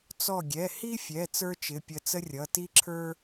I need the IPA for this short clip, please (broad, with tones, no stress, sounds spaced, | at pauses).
t͡s ɔ˧˩ ɡʲ ɛ˩˧˩ h i˥ fʲ ɛ˩˧˩ t͡s ə˞˥ t͡ʃ ɪ˩˧˩ pʲ ə˧˩ t͡s ə˥ rʲ ʌ˩˧˩ t i˥ ǁʰ ə˞˥